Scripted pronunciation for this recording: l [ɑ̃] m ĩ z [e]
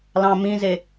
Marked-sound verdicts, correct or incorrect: correct, correct

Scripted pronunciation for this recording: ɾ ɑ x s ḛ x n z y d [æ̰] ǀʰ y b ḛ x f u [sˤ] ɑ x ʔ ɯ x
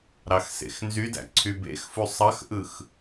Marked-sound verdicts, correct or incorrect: correct, correct

